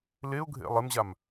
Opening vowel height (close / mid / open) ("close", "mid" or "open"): mid